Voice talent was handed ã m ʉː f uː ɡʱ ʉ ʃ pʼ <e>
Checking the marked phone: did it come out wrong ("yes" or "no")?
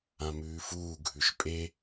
no